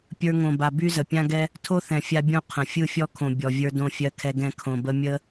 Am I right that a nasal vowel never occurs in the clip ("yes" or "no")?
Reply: no